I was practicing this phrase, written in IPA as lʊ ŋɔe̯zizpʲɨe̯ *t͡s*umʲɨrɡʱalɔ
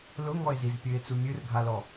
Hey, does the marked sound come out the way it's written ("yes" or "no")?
yes